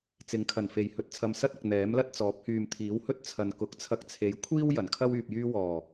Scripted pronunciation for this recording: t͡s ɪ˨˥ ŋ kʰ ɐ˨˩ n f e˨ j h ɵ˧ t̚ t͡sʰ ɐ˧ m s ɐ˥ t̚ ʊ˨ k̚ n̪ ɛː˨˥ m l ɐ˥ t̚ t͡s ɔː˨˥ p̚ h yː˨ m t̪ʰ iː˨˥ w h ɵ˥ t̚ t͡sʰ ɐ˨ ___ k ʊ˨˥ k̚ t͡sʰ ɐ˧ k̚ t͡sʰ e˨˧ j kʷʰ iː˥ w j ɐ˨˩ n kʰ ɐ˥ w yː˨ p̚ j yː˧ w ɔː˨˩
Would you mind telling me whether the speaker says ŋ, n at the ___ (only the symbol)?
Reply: n